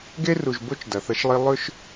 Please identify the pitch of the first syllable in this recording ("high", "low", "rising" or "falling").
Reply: high